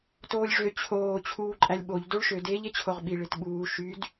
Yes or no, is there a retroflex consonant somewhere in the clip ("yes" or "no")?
yes